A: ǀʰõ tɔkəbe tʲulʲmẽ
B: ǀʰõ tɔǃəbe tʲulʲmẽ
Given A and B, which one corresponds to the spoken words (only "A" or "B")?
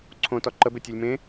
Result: B